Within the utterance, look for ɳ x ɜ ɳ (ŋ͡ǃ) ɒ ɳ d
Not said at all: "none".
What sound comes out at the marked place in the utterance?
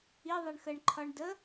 ǃʰ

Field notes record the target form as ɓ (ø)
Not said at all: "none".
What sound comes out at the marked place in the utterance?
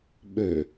ø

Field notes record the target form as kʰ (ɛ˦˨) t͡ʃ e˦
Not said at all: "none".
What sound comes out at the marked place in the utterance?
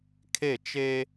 e˦˨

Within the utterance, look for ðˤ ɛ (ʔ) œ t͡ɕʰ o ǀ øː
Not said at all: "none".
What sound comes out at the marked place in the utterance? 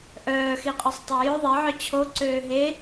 ʕ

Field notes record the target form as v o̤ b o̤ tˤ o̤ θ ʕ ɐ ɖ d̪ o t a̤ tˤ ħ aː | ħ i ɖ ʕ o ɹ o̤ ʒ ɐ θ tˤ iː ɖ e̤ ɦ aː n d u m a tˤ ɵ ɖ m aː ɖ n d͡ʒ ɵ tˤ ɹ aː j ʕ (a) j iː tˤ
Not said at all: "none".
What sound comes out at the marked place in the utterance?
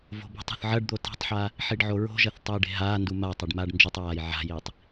a̤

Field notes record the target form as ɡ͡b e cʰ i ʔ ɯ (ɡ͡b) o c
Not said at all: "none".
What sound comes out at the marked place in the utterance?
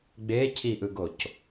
ɡ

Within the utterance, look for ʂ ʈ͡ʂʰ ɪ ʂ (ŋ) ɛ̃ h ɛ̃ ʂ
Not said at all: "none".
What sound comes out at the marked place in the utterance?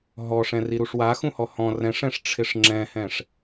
ŋ͡ǁ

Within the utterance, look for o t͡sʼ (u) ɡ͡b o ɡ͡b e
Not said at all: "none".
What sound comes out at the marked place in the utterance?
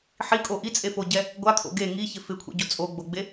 o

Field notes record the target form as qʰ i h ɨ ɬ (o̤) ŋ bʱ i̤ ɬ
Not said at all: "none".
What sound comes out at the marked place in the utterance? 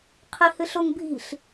o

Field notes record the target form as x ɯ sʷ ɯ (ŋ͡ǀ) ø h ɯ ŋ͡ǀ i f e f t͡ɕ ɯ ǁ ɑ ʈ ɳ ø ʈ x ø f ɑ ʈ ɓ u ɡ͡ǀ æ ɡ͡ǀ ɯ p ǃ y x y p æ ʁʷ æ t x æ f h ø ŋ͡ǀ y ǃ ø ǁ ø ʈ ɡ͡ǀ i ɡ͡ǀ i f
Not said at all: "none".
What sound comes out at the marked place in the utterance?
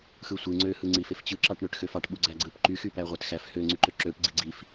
ŋ͡ǀ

